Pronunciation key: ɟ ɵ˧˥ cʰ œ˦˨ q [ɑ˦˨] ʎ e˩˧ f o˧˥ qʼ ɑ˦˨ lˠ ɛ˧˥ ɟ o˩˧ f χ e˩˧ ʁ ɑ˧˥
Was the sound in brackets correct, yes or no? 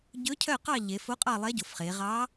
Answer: yes